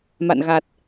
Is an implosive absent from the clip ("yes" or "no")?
yes